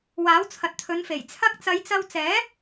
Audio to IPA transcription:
w aː˨˥ w t͡sʰ ɐ˨ t̚ t̪ʰ ɵ˨˧ n f e˨˩ j t͡sʰ ɐ˧ k̚ t͡s ɐ˨˧ j t͡s ɐ˧ w t͡s ɛː˨˥

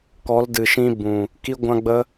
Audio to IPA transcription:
k ɔ˨˦ l d ɨ˨ ʃ ĩ˧ b ũ˨ | k i˦ ɡʷ ã˦ ɡ͡b ə˦

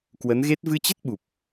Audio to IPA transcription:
k w ə˨˦ n ɣ e˦˥ t̚ v ɨ˧ t͡ɕ ə˦˥ t̚ ɓ u˨˩ p̚

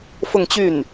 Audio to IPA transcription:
f ʊ˥˧ ŋ t͡ɕ y˥˩ n

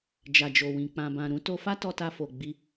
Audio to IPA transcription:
d͡ʒ a˨ d͡ʒ o˨ w ĩ˨ k͡p ã˨ b ã˨ ɾ ũ˨˦ t o˧ f a˦ t ɔ˧ t a˧ f o˨ ɡ͡b i˧

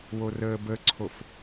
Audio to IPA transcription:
w o r əː b ə ǀʰ o f

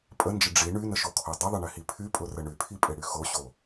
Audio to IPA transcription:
pʼ ə n d͡ʒ ə ɖ͡ʐ i ɳ y n ə ʃ o kʰ o dˤ ɪ ðˤ ə ɳ ɪ h i pʰ y pʼ ʊ r ə ɳ y pʰ i pʼ ɪ ɽ y x o ɕ o

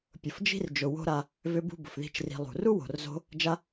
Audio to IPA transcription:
pʲ ʊ˨ f d͡ʒ i̤˦ r d͡ʒ ʊ˨ w o̤˦ ɾ a˧ | v ʏ˦ b ṳ˦ b ʊ˨ f ð i̤˦˨ t͡ʃ r i̤˧ lˠ ṳ˨ r u˦ w o̤˨ r z o̤˧ | d͡ʒ a˦

